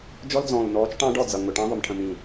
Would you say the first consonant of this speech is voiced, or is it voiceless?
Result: voiced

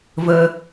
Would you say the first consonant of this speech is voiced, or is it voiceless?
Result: voiced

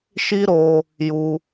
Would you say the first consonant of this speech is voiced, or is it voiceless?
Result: voiceless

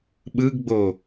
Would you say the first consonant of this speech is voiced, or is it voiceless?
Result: voiced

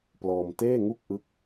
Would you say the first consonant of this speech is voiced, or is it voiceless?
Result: voiceless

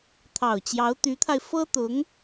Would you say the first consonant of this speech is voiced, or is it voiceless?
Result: voiceless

